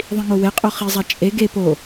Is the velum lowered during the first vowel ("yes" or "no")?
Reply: yes